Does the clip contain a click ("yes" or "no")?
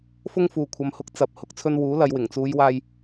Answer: no